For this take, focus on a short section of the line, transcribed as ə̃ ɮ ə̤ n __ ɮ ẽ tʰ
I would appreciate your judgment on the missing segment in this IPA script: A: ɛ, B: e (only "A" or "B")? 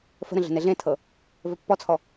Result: B